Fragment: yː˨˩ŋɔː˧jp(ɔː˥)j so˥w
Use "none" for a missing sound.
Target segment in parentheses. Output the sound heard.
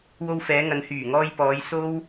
ɔː˨˧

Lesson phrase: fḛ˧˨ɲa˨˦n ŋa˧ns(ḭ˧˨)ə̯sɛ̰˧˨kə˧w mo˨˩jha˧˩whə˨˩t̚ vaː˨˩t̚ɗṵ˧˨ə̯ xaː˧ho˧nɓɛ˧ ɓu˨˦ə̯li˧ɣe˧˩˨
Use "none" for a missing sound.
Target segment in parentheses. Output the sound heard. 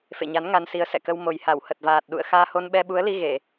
i˨˦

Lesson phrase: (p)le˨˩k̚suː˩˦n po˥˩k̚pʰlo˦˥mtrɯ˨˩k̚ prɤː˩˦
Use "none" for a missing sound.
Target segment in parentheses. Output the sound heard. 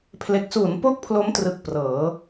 pʰ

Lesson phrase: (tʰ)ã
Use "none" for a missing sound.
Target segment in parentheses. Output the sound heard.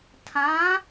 tʰ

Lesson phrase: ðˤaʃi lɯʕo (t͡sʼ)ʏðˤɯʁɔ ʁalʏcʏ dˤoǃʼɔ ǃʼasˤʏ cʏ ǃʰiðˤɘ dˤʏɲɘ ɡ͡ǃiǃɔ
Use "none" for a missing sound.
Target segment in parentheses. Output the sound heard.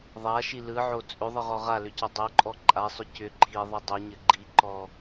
t͡sʼ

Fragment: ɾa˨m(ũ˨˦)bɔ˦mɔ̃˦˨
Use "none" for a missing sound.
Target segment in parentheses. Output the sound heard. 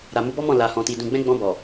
u˨˦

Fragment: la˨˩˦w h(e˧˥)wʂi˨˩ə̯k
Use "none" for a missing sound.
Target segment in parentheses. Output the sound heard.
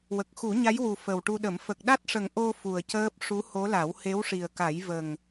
e˧˥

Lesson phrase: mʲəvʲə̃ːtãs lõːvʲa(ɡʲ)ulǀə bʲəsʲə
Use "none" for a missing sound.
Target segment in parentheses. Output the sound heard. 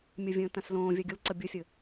ɡʲ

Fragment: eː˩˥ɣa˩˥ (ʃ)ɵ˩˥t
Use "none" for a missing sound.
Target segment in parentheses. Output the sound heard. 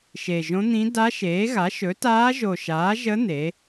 ʃ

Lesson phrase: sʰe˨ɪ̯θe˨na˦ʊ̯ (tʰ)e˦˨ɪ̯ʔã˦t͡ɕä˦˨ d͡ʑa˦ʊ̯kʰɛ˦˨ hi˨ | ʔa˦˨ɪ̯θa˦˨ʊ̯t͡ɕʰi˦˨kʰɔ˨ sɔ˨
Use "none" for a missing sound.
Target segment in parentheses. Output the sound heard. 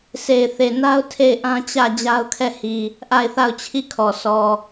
tʰ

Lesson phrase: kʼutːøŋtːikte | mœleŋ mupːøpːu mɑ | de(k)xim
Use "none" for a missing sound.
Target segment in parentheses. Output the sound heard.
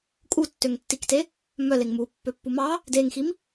ŋ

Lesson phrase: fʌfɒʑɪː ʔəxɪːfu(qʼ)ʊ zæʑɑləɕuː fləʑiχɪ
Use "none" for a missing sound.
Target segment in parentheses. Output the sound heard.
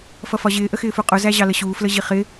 qʼ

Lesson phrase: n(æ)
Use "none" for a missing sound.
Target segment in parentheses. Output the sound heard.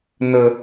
ə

